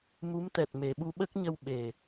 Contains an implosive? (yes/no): yes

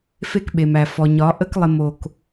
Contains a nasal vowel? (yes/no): no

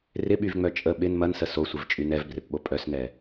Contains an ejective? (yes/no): yes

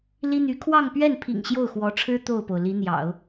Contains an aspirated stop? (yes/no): yes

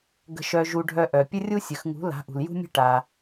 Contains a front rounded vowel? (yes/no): yes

